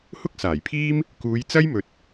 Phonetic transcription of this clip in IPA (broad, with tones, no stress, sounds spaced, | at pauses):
h ʊ˥ k̚ s aː˨˩ j pʰ iː˥ m | k uː˨˧ j t͡s ɐ˥ j m ɵ˨ t̚